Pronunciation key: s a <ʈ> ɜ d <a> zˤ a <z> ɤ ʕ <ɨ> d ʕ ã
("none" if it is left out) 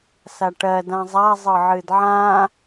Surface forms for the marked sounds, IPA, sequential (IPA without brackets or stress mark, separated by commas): ʈ, ã, zˤ, ɨ